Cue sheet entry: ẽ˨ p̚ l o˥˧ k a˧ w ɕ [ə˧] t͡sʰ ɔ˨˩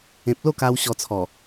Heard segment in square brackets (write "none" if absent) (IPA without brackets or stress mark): ɔ˧